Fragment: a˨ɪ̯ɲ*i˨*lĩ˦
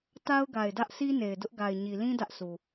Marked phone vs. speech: correct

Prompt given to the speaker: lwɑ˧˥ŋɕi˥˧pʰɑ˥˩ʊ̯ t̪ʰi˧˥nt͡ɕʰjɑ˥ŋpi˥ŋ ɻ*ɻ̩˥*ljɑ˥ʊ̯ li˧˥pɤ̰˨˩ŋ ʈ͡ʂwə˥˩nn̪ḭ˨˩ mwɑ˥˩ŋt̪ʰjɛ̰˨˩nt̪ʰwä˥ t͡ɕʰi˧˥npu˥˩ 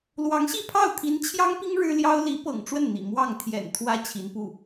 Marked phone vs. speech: correct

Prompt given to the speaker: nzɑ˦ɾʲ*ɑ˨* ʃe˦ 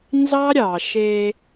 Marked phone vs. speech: correct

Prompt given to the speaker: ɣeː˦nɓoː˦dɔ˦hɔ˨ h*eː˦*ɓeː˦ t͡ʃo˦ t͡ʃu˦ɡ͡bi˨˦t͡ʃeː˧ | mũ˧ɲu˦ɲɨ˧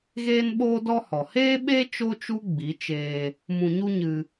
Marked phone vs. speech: correct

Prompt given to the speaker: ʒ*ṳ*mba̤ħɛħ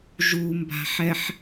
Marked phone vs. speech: incorrect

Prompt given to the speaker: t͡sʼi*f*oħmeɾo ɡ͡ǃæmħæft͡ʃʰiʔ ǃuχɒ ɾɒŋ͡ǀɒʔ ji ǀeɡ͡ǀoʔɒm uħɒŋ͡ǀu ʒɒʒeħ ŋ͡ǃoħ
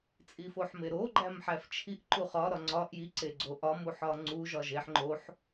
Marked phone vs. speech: correct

